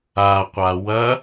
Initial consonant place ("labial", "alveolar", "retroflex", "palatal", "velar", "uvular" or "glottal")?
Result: uvular